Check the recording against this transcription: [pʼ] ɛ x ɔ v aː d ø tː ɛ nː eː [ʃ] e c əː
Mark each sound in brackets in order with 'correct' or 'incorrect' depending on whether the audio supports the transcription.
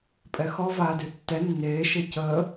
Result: correct, correct

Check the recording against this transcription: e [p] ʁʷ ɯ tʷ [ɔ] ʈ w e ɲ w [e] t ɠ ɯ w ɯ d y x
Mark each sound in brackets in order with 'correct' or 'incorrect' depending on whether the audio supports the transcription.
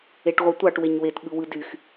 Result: incorrect: ʈ, incorrect: ɑ, correct

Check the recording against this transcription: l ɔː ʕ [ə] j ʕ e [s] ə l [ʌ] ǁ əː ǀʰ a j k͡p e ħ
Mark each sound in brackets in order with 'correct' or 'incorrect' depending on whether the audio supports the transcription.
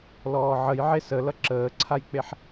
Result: correct, correct, correct

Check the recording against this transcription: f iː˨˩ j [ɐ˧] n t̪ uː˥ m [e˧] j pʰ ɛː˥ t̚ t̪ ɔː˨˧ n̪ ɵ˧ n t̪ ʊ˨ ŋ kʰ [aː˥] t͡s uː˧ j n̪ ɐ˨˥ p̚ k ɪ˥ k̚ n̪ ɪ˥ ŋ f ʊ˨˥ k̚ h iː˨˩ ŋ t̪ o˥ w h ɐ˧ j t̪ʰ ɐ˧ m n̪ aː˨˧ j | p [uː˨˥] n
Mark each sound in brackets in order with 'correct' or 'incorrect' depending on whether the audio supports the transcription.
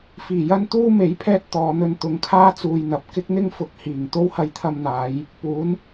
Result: incorrect: ɐ˥, incorrect: e˨˥, correct, correct

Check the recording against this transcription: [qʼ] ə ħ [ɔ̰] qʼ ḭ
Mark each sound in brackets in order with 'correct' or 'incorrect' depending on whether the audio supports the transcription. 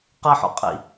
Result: incorrect: q, correct

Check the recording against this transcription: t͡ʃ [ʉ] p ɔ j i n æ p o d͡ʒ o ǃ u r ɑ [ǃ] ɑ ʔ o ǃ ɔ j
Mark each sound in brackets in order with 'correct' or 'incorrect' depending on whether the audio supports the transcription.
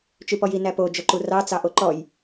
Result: correct, incorrect: t͡s

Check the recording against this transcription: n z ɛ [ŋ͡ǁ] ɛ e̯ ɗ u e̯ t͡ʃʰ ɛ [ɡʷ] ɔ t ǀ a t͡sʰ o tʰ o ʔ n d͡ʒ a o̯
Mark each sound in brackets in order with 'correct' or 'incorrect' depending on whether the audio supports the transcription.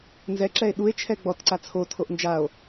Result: incorrect: ǁ, incorrect: ɡ͡b

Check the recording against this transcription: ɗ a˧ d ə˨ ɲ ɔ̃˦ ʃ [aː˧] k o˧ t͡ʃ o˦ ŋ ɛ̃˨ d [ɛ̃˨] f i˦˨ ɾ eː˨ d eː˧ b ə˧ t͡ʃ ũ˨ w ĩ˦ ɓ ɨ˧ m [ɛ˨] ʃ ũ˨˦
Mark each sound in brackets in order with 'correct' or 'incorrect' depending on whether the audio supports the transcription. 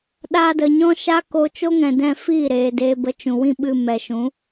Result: incorrect: aː˦, incorrect: ɛ̃˧, correct

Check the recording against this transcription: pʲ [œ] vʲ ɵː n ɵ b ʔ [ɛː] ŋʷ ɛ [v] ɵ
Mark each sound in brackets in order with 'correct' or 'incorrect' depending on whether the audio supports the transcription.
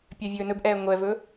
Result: correct, correct, correct

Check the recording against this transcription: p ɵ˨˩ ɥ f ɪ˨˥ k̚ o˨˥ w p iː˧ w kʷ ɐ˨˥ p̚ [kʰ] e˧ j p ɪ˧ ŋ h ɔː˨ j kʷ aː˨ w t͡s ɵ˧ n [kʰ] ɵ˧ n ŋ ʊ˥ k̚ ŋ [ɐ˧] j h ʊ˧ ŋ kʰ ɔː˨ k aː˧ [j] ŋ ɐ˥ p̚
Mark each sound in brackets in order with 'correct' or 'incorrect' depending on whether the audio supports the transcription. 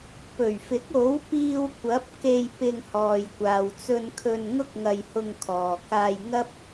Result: incorrect: k, correct, correct, correct

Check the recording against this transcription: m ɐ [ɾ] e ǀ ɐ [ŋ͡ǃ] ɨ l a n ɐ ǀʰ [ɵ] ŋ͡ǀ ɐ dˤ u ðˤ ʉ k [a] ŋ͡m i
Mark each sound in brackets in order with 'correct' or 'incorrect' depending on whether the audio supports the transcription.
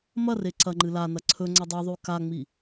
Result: incorrect: r, correct, correct, correct

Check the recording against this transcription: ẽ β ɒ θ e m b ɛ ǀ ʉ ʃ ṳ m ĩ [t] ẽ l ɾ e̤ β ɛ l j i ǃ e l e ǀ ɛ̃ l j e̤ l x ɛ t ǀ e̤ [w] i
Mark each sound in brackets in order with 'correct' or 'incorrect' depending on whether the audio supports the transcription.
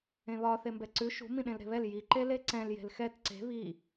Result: incorrect: ɗ, incorrect: β

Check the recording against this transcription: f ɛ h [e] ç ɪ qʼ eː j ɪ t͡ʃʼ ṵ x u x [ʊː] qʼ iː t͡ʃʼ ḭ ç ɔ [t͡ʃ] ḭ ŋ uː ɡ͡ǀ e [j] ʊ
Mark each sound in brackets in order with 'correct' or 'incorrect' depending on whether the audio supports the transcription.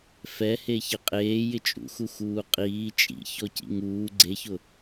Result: correct, incorrect: uː, incorrect: c, incorrect: ç

